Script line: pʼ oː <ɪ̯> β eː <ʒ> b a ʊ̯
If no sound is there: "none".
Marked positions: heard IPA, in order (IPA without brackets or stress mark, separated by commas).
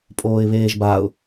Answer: ɪ̯, ʒ